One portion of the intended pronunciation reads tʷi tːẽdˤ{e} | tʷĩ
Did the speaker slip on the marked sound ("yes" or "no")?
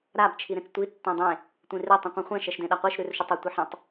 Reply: yes